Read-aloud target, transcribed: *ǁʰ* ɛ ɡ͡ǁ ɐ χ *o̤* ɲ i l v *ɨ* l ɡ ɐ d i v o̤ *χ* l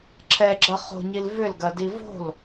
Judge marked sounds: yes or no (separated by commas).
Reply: yes, yes, no, no